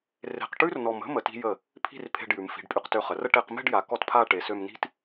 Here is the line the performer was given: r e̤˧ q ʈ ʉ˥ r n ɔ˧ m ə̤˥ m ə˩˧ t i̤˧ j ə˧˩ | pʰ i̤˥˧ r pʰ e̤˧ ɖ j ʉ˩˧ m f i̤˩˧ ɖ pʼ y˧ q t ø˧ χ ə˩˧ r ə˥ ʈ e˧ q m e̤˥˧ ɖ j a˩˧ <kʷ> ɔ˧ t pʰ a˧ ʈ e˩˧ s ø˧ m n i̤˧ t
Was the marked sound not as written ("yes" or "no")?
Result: yes